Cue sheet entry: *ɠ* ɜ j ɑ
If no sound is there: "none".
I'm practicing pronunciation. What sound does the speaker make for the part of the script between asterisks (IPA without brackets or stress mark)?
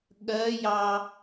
ɠ